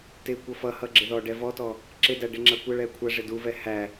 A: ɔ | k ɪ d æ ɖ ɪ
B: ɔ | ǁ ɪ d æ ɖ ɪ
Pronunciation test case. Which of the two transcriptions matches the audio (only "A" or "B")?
B